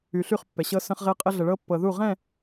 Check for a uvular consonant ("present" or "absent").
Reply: present